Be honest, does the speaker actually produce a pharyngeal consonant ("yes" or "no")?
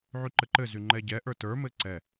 yes